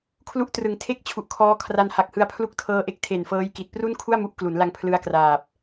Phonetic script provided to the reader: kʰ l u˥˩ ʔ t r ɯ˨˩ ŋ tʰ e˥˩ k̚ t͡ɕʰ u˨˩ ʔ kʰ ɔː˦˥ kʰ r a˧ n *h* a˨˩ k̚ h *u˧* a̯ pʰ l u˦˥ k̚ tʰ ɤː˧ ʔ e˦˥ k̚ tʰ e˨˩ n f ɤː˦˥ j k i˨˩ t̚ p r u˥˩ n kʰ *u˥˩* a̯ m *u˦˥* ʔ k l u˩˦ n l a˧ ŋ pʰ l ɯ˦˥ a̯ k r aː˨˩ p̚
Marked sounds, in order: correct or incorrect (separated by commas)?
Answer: correct, incorrect, correct, correct